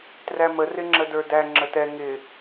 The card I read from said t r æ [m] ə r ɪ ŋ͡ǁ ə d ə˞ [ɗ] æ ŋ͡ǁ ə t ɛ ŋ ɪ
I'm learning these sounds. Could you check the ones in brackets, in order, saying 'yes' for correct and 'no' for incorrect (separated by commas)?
yes, no